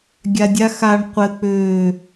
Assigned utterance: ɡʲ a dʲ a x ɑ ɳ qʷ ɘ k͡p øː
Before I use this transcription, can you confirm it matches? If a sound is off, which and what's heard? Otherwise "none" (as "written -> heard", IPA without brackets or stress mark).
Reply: ɑ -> a